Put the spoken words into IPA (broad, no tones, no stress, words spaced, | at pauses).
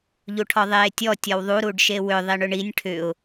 ʎuʈʰɔðˤeːtʲɔ tʲɔwðˤu ɾuɖʃewʏ ðˤiɳʏɳinʲ ʈʰʏʊ̯